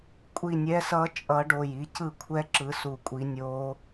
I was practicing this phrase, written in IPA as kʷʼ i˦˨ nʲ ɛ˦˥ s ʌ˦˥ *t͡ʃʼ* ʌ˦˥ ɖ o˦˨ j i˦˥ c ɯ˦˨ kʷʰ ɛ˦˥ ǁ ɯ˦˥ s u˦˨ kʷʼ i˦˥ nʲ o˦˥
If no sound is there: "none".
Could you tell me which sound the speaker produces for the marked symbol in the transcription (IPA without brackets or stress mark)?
t͡ʃʼ